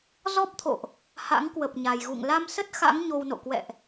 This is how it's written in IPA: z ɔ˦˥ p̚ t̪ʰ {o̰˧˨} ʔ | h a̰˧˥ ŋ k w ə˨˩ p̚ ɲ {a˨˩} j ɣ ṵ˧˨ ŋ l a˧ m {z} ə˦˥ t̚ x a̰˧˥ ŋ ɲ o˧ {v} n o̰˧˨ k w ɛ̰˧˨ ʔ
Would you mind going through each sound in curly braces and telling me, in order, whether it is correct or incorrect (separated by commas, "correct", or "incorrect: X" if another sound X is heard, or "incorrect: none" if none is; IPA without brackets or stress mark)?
correct, correct, incorrect: s, incorrect: w